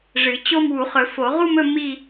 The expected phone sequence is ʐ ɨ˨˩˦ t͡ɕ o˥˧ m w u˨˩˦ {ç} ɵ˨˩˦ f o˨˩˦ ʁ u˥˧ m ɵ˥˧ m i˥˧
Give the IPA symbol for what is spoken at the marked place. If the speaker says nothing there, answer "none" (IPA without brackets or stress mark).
χ